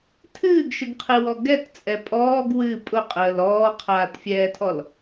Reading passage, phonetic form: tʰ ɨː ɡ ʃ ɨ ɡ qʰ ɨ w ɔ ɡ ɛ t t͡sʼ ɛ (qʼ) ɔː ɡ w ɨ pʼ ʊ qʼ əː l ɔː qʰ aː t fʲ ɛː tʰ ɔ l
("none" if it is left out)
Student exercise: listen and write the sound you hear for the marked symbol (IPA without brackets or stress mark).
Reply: pʼ